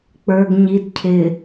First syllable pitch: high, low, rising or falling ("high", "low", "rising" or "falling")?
low